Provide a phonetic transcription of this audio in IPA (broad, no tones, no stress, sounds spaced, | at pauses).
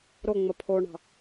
ɾ o ŋ͡m ə pʰ o ɳ ɑ̤